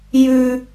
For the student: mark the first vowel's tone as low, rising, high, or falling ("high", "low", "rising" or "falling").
high